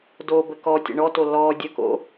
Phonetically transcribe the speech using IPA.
do bəkɔtʲə̰ ɳɔto lɔ dʲəko̰

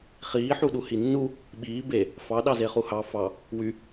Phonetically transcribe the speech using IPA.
χiːħuɗu hinːu | ɓiː be | fɑ ɗɑzeχuhɑ fɑ | wy

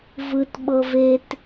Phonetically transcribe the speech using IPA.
vɯt ɓɤvet

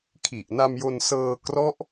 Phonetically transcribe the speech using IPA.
kʰi˨˩ʔna˧m jo˧nsɤː˧ krɔ˦˥ʔ

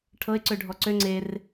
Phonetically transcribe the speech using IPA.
ʈʰɤɪ̯ǀøɖʱɔ ǀø ŋ͡ǀer

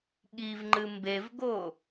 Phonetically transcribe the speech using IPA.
ɠivŋ͡ǃɨ mbevɡo

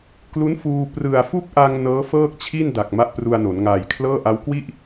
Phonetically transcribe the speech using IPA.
klu˦˥nfuː˧ prɯ˨˩a̯fu˥˩k̚ʔa˧ŋ nɤː˦˥fɤː˥˩k̚t͡ɕʰi˥˩nda˨˩k̚ ma˦˥ʔpru˧a̯no˩˦n ŋaː˨˩jkʰlɤː˥˩ʔa˦˥w kwi˥˩ʔ

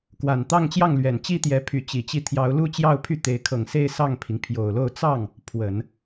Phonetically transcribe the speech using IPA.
kwa˨˩nt̪ɑ˥˧ŋt͡ɕjɑ˥˩ŋlɥɛ˨˩n t͡ɕi˥t̪jɛ˧˥ pʰy˧˥t͡ɕi˨˩t͡ɕi˥˩ t̪ʰjɑ˧˥ʊ̯lu˥t͡ɕjɑ˥˧ʊ̯pʰy˥˩ t̪e˧˥ɪ̯ kʰɤ˨˩ŋse˥˧ɪ̯ sɑ˥˩ŋpʰi˩ŋ pʰjo˨˩ʊ̯lo˥˧ʊ̯ t͡sɑ˥˩ŋ | pʰwə˨˩˦n

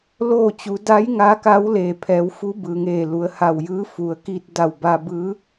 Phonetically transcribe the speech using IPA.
loː˥˨t͡ɕu˩˧ da˧˥j ŋaː˧˥ka˧˥wleː˩ pʰɛː˩˧wfu˧˥ bɯː˩ŋeː˧˩lu˩˧ə̯ ha˧˩wjɯː˧˥ fu˩ə̯ki˧t̚da˧˩w baː˧bɯː˧˥

